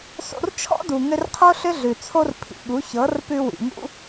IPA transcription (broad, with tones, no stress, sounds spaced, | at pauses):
s o̰˧ r t͡ʃʰ ɔ̰˦ d u˨ ŋ ʏ˧ r qʰ o˦ ɬ ʏ˦ ɮ ʉ˨ t͡sʰ o˦ r pʰ ḭ˨ ɠ u˨˦ ç ɤ˨˦ r p ʉ˧ w ḭ˨ ŋ ṵ˦